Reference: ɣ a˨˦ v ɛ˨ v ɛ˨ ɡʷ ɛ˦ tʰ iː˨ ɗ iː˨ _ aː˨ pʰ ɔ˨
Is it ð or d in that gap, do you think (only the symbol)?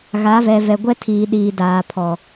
d